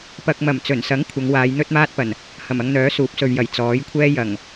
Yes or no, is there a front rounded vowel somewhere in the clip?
yes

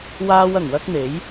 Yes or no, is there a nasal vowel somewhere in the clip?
no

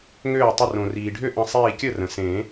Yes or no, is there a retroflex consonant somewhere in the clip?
yes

